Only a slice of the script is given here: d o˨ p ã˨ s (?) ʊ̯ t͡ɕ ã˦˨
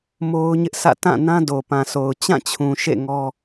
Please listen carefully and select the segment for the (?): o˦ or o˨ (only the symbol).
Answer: o˨